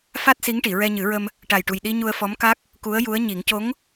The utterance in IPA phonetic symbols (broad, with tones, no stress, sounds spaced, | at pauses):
f a˦˥ t̚ s i˧˥ ŋ ʈ i˨˩˨ ɹ ɛ˧ ɲ ɨ˨˩˦ ɹ ə˧ m | ʈ a˨˩ j ʈ u˨˩ j ɗ i˧ ɲ u˧ ə̯ f ɔ˧˥ m k a˦˥ k̚ | k u˧˥ ə̯ j u˧˥ ə̯ ɲ i˨˩˦ ŋ c o˧˥ ŋ